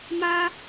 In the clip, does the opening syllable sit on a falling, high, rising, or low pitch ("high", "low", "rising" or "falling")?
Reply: high